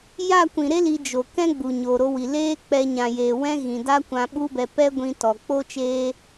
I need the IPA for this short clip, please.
j a˦˨ kʷ ĩ˨ ɾ e˦ l i˧ d͡ʒ o˨ k ɛ̃˦ ɡ͡b u˨ ɲ o˨ ɾ o˧ w i˨ l eː˦ k͡p ɛ˧ ɲ ã˨ j eː˨ w ɛ̃˦ ɣ ĩ˨ d a˦ kʷ ã˧ ɓ u˦ b ɛ˧ p ɛ˦ ɡʷ ĩ˧ t ɔ˨ k͡p o˦ t͡ʃ eː˦

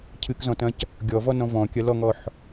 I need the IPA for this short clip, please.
cʰ ɨ k z ɔ̃ t ɐ̃ c | ɡʲ ɔ v ɔ n ɔ̃ v ɔ̃ kʲ ɐ l ɔ ŋ ɔ ħ

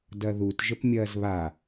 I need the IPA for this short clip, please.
d ɐ ð u t ʒ ə p mʲ ɐː z β a

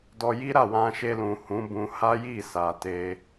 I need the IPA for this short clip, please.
d ɔ˧ j i˦ ɾ a˦˨ w ã˧ ʃ e˧ l ũ˨ h ũ˨˦ b ũ˧ h a˦ j i˦˨ s a˨ t e˧

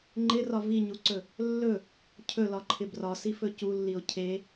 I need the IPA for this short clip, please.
ŋ͡ǃ ɪ r ɒ v i ɲ u ǀ ɵ | lː ɵ | cʰ ɵ l ɒ ǃʰ ɪ b r ɒ s i f ɵ c u lː i o̯ cʰ e

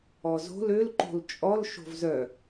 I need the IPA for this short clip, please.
ɔ z o̤ l ø l ǃ o̤ l t͡ʃʼ ɔ l ʃ o̤ v z œ

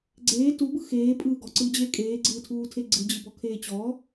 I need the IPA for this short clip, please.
ɡ͡ǀ eː t u b ɯ x eː pʼ ɯː ɡ ɔ ǀ ɯː d͡ʑ eː kʼ eː ɡ͡ǀ ɯː tʰ uː tʰ e ɡ͡ǀ ɯ d͡ʑ ɯ b ɔ kʰ eː t͡ɕ ɔ

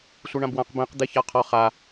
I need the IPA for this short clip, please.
sʷ e ɳ ã b w ã q b ẽ q d̪ e ç a qʰ ɔ χ a

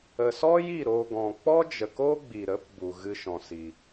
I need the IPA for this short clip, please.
ə˨ s ɔ˦ j i˦˨ ɾ o˨ ɡ ɔ̃˨ k͡p ɔ˦ d͡ʒ ə˨ k o˦ ɡ͡b i˨ ɾ ə˨˦ p b u˨ ɣ ɨ˦ ʃ ɔ̃˨ s i˨

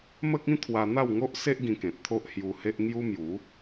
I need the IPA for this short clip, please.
m ə˦ k̚ ĩ˦ t̪ʰ w a˧ n̪ a˥˧ w ŋ o˦ ʔ s e˦ ʔ ɡ ĩ˧ k ẽ˨ t̚ t̪ʰ o˦ ʔ h j u˧ h e˦ ʔ ŋ j u˦ m j u˨˦

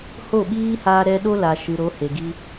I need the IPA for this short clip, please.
h o˦˨ ɓ iː˦ h aː˦ ɾ ɛ˦ ɗ o˦ l aː˨ ʃ ɨ˨ ɾ o˨˦ h e˨ ɡ i˧

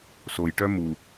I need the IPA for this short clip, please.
s o j ʈ œ m u

